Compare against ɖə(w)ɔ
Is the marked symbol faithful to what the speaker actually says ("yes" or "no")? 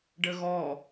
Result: no